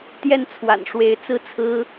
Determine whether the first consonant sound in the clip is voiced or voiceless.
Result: voiceless